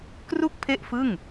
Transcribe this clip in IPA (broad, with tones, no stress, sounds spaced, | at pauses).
k r u˥˩ k̚ pʰ e˥˩ ʔ f ɯ˥˩ ŋ